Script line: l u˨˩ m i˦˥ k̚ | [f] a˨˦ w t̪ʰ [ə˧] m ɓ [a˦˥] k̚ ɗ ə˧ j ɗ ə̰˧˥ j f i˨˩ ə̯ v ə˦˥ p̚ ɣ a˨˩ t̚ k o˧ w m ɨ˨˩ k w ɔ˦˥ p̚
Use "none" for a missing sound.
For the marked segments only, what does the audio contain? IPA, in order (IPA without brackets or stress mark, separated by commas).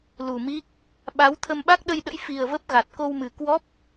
ɓ, ə˧, a˦˥